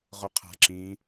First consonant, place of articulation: uvular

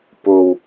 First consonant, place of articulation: labial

